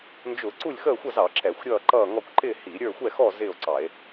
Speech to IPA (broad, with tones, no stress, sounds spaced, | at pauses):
n d͡ʒ ʊ˧˩˧ ǀ u˥˨ lʲ x əː˥˨ xʷ ʌ˥˨ z ɑ˧˩˧ ǁ ɛ˧˩˧ xʷ ɾʲ ʌː˥˨ ǃ ʌː˥˨ ŋ ɔ˥˨ kʷ ǃ ɪ˥˨ h i˧˩˧ ɾʲ ə˞˥˨ xʷ ɛ˥˨ x ɔ˥˨ z ɪː˥˨ o̯ ǀ ɑ˧˩˧ e̯